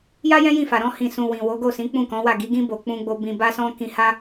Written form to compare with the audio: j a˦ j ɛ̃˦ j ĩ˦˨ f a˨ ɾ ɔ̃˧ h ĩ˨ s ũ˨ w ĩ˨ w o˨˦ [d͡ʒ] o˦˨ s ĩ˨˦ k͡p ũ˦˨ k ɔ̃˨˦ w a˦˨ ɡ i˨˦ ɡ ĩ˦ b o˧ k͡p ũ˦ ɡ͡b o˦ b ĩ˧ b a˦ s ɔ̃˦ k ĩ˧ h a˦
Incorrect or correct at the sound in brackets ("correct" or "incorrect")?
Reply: incorrect